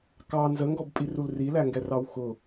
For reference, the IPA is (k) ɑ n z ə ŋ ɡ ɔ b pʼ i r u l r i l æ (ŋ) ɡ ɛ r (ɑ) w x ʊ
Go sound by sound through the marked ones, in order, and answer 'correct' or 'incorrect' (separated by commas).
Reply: correct, correct, correct